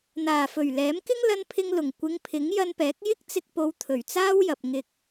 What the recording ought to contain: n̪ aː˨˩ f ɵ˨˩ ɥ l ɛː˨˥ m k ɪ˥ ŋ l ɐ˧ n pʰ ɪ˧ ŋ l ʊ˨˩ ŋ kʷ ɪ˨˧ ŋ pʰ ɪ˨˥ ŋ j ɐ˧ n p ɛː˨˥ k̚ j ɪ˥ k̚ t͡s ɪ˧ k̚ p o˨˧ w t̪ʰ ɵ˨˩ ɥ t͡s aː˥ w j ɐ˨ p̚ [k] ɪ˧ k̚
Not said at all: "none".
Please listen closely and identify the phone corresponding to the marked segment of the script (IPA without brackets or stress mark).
ŋ